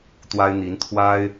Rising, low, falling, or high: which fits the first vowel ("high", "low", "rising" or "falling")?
high